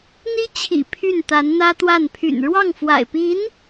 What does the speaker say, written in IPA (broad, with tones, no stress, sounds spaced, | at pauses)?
n̪ i˥ t͡ɕʰ ḭ˨˩ pʰ y˥˩ n t̪ a˧˥ n n̪ ä˥ t̪ w a˥˩ n pʰ y̰˨˩ n ɻ w ɑ˥˩ ŋ f w a̰˨˩ ɪ̯ p i˧˥ n